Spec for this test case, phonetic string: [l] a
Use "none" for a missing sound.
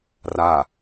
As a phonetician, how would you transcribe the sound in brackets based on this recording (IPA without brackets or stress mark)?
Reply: r